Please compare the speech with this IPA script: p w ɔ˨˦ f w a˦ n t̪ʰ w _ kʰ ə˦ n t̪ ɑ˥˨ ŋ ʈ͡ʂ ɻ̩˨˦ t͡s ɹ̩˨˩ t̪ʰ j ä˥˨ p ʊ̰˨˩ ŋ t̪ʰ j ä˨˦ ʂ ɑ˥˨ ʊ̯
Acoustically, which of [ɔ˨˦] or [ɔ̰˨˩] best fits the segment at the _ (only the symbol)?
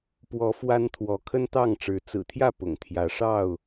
ɔ˨˦